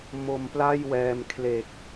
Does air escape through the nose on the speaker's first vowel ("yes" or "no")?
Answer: no